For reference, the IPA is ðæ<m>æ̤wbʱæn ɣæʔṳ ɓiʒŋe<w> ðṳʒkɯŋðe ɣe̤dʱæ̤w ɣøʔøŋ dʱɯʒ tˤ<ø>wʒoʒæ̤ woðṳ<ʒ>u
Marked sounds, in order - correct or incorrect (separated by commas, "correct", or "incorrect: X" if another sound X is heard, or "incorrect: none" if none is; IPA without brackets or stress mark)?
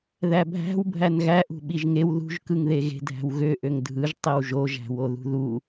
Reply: incorrect: bʱ, correct, incorrect: e, incorrect: ð